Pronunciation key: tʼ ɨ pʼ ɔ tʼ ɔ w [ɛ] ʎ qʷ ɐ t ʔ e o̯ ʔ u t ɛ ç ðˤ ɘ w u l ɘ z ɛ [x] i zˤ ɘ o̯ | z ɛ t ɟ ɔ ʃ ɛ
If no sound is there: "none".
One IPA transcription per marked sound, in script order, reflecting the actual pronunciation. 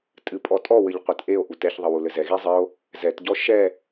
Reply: ɘ, ɣ

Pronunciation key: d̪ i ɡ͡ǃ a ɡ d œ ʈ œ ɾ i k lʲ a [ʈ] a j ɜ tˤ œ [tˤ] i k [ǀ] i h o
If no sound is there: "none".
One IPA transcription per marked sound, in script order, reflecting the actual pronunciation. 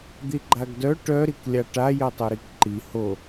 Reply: ʈ, ɾ, ǃ

